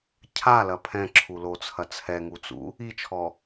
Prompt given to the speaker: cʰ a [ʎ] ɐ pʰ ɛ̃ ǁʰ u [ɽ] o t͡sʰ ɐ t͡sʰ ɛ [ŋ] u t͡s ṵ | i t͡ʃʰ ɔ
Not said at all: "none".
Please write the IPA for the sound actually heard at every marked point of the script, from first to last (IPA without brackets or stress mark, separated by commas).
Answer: l, l, ŋ